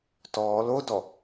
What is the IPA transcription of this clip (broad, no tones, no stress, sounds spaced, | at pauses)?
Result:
t ɔː l o d ɔ